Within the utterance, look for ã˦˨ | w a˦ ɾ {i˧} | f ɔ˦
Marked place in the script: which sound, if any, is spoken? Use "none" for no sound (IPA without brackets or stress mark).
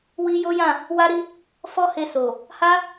i˦